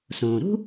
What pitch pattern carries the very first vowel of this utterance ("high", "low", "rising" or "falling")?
low